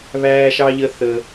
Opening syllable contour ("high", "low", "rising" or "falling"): high